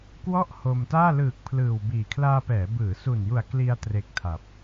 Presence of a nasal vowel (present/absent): absent